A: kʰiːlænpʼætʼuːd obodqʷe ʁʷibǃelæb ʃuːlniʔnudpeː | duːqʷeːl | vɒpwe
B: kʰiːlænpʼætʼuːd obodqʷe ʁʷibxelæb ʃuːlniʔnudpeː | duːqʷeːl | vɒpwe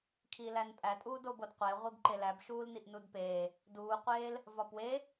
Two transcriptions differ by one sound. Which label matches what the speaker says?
A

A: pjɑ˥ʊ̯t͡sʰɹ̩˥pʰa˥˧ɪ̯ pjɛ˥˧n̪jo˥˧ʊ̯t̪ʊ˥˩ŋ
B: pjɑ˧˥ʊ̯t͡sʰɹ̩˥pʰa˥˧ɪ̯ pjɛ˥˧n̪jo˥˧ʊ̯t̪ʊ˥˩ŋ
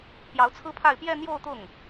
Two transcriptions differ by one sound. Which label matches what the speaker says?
B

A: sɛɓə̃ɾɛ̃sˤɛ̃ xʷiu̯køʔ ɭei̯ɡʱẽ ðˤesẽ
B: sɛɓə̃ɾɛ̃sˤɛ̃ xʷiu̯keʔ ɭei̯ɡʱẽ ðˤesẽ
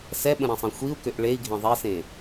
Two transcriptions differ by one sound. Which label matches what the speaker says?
A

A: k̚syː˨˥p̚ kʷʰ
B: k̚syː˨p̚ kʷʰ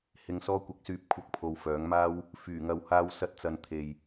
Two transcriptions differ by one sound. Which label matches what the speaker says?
A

